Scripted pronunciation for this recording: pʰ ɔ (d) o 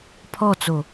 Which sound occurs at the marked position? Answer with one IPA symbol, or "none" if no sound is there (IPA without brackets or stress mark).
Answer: t͡s